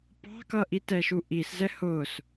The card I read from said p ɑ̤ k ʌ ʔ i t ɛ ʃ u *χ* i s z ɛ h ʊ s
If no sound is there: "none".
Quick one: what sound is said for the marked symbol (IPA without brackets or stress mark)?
ʔ